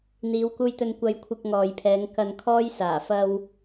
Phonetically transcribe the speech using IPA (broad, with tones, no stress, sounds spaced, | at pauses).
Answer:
n̪ iː˨˧ w k uː˧ j t̪ ɵ˧ n kʷ ɐ˧ j kʷʰ ɪ˧ k̚ ŋ ɔː˨ j pʰ ɛː˨˧ ŋ k ɐ˧ n kʰ ɔː˥ j s aː˨˩ f ɐ˧ w